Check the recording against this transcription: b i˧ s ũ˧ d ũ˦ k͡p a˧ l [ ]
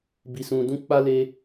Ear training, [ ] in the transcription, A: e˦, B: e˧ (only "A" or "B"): B